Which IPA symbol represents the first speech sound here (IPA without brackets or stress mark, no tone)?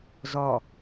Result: z